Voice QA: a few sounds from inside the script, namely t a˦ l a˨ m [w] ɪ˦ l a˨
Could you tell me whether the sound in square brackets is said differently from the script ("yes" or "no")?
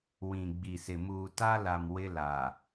no